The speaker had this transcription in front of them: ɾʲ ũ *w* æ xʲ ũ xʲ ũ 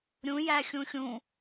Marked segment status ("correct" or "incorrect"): incorrect